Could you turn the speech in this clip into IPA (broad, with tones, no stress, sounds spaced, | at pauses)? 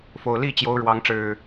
f o˨˩ ʊ̯ l i˥˨ t͡ɕ j o˨˦ ʊ̯ ɻ w ɑ˨˦ ŋ ʈ͡ʂ ɻ̩˨˩